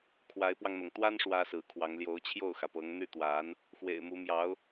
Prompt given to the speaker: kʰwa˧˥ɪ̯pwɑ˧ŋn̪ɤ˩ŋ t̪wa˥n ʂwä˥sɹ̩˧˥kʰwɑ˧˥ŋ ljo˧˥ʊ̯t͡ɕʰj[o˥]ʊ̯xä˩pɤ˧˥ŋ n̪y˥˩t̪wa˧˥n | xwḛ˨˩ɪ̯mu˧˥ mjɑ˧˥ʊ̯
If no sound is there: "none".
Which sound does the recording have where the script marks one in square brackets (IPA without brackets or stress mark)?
o˥˩